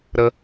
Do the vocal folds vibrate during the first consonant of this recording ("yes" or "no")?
yes